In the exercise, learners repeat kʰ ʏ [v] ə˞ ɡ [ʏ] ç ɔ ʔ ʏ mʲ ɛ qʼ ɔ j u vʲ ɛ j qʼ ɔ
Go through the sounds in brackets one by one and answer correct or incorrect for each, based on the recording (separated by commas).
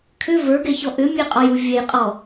correct, incorrect